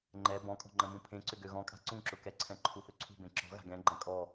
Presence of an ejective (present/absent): present